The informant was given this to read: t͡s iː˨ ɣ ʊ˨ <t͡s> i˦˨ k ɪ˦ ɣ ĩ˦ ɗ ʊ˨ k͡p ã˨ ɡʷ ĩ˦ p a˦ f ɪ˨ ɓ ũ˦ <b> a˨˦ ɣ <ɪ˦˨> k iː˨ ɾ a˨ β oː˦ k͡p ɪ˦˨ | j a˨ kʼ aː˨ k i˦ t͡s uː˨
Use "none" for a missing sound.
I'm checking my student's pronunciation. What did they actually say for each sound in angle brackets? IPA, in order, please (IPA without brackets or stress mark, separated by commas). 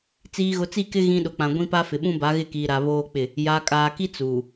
t͡s, b, ɪ˦˨